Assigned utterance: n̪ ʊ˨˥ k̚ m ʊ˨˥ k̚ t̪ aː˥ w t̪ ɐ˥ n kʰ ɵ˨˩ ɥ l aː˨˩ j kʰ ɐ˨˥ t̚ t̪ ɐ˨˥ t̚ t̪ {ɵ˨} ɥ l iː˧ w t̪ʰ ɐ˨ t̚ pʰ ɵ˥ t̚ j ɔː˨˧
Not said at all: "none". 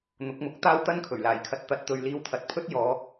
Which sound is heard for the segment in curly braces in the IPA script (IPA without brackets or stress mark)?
ɵ˨